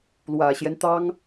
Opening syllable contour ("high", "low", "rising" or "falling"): low